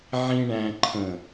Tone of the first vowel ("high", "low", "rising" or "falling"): low